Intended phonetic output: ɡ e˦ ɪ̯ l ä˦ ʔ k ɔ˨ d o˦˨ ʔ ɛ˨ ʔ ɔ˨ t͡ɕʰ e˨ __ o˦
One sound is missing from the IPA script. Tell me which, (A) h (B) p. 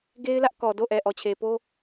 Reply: B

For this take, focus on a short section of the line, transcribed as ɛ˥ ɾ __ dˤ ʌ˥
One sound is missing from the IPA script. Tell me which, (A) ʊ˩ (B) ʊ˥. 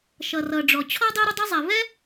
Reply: B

